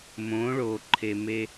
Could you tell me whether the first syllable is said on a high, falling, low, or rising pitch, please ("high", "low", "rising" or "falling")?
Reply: rising